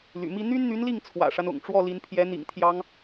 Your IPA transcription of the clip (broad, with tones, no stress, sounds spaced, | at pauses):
l y̰˨˩ m i˥ n̪ y˥ n n̪ y˧˥ n l i˥˩ ŋ t͡sʰ w ä̰˨˩ ʂ a˦ n ʊ̰˨˩ ŋ ʈ͡ʂ w ɔ˥˩ l i˧˥ n pʰ j ɛ˧˥ n̪ ḭ˨˩ ŋ t̪ʰ j ɑ˥ ŋ